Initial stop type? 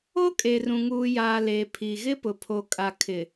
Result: ejective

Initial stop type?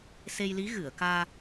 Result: plain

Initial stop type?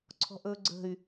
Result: click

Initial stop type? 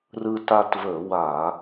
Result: plain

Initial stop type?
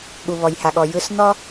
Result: implosive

